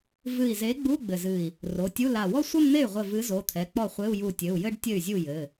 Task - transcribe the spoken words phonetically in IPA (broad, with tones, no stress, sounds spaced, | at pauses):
v ɨ˧˩ i̯ z e˨˥ ɡ͡b u˧˥˧ ɡ͡b ɘ˧˩ z ɨ˧˩ i̯ | r o˩˧˩ tʲ u˧˥˧ l a˧˩ w ɔ˥˧ sʷ ɐ˥˧ m n̪ e˥˩ y̯ ʁʷ ɘ˧˩ v ɨ˨˥ z o˩˧˩ t̪ʰ ɛ˩˧˩ k͡p ɔ˥˩ χʷ e˧˥˧ u̯ j u˧˩ tʲ ɘ˩˧˩ u̯ j ɘ˥˧ ɖ tʲ ɘ˥˩ y̯ zʲ u˥˩ j ɘ˩˧˩